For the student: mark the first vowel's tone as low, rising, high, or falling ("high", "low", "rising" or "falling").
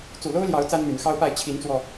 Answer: low